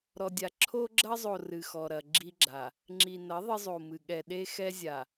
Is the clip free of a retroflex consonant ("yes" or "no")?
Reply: yes